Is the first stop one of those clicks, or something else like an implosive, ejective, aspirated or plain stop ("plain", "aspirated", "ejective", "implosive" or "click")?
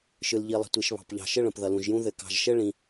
plain